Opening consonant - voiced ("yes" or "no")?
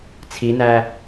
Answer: no